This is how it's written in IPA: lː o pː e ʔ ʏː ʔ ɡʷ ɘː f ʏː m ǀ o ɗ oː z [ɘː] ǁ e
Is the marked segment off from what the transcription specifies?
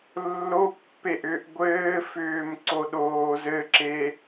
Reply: yes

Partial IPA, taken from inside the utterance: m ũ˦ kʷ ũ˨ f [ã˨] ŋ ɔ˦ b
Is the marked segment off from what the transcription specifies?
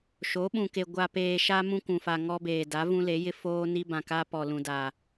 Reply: yes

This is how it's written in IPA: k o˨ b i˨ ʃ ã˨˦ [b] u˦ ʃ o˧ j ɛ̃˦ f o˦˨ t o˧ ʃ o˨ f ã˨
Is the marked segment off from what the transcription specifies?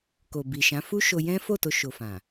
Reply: yes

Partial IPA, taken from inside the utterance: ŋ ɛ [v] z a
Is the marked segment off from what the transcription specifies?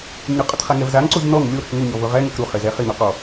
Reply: no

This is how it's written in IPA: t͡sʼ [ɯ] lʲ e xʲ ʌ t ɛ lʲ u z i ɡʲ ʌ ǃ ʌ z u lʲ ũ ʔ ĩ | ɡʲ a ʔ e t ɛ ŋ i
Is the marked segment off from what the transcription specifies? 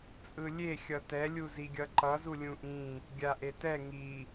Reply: no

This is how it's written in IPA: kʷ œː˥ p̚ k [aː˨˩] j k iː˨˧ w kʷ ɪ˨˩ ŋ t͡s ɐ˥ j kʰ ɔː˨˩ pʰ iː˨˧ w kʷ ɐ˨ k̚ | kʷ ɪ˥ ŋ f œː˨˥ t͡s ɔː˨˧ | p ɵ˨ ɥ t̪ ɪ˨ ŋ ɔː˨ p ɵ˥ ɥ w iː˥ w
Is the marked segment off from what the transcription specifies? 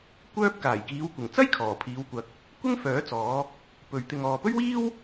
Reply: no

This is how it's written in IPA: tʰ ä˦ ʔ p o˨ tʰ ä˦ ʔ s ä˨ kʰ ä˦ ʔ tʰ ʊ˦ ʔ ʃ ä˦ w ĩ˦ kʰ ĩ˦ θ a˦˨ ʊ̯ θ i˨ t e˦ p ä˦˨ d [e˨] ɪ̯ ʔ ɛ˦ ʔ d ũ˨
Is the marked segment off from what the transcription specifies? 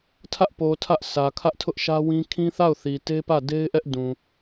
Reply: yes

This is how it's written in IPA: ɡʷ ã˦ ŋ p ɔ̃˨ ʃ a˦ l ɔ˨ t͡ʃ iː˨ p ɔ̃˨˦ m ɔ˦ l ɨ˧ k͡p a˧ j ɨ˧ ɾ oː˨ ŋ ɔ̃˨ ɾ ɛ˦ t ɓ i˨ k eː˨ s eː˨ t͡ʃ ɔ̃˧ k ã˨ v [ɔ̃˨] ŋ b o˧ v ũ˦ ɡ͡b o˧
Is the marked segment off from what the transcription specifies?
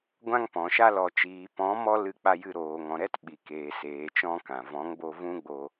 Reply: yes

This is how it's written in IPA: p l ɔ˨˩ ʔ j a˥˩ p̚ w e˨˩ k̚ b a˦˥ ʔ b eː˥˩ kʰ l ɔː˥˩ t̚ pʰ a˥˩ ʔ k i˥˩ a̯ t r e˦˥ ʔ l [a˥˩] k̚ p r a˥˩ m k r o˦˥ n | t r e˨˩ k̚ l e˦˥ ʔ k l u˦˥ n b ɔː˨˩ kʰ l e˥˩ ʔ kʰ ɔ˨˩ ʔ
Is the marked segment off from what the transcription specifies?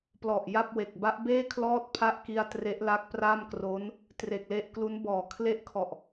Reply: yes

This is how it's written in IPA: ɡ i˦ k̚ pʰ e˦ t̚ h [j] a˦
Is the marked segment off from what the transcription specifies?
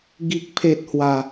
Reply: yes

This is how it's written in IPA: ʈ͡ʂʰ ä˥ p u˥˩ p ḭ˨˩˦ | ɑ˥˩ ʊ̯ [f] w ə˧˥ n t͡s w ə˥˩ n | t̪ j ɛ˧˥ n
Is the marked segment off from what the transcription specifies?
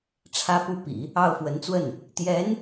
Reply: no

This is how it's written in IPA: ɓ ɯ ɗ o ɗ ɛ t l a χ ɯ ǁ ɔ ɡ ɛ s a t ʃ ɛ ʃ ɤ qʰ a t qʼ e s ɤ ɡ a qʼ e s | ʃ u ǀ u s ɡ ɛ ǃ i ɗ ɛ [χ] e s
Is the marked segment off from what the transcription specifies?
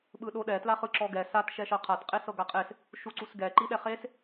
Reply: no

